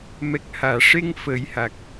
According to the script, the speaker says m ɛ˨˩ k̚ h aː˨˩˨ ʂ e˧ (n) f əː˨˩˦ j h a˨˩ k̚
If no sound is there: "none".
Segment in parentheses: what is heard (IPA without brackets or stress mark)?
ŋ